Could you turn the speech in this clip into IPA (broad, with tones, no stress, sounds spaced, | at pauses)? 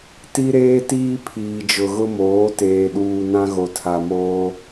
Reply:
t i˦ ɾ eː˦ t iː˦ pʰ iː˨ d͡ʒ ʊ˨ ɣ ʊ˦ m oː˨˦ t eː˨ ɗ uː˨ n ã˦ ɣ o˨ tʰ a˨ m oː˦